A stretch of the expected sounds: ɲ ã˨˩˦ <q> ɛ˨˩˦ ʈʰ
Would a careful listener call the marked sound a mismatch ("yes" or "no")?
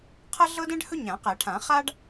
no